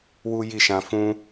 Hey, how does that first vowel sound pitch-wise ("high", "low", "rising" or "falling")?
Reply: high